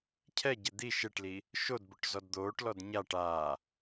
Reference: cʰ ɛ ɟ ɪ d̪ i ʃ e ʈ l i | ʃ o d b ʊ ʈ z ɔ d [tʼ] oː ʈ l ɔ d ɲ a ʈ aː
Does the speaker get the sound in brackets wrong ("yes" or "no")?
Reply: yes